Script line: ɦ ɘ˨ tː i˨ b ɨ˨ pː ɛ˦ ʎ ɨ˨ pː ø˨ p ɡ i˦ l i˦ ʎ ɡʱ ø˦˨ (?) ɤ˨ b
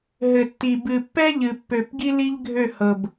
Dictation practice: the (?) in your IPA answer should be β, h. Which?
h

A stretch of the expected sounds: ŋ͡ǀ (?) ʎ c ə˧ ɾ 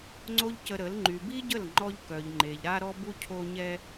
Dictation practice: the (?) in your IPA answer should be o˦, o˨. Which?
o˦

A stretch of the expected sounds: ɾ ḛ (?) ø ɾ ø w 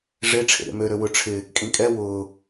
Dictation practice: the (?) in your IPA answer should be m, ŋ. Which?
m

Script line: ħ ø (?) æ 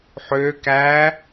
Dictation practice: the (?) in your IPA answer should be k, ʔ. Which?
k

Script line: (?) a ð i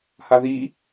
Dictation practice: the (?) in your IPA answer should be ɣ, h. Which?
h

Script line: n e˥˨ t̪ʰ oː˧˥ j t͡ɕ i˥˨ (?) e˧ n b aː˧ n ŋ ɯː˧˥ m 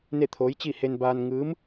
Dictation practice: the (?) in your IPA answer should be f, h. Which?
h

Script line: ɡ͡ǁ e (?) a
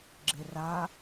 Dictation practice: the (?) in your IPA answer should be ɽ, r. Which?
r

